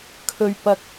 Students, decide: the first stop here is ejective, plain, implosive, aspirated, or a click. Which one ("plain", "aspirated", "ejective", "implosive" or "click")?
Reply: aspirated